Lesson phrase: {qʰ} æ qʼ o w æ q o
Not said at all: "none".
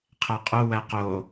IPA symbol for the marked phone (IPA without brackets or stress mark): qʰ